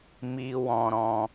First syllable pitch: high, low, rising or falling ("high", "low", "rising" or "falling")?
high